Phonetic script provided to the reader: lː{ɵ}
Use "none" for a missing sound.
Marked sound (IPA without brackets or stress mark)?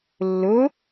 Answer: ɵ